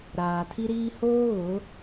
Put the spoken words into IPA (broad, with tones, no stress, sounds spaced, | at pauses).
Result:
ɾ aː˨ tʰ i˦ ɾ iː˦ h oː˦ ɣ ʊ˨˦